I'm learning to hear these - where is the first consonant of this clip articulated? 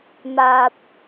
lips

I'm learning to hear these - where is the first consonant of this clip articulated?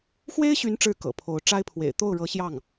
velum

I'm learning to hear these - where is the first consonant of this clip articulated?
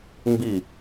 lips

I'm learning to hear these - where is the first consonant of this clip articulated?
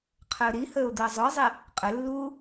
uvula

